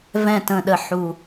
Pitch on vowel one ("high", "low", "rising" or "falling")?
falling